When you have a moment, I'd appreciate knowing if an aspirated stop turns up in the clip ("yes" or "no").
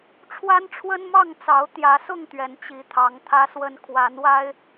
yes